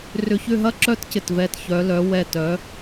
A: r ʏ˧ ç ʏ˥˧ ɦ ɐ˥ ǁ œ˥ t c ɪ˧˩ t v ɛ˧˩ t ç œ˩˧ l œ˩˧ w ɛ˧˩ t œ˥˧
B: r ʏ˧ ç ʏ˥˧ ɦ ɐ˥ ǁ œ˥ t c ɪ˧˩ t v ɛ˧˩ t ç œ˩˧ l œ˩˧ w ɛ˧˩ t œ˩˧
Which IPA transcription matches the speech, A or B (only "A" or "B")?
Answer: B